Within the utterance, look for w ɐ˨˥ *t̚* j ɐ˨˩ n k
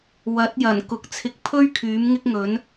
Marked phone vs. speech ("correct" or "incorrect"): correct